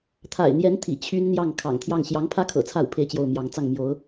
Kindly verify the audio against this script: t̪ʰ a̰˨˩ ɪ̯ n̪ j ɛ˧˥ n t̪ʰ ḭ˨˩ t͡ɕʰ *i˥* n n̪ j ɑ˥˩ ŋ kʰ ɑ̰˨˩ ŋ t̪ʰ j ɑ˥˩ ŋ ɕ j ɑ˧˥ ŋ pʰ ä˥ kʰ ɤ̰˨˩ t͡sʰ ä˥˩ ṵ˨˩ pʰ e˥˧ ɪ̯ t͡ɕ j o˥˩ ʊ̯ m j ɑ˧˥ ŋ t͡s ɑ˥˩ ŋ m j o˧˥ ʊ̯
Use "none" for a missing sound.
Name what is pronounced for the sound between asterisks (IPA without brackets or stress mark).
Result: y˥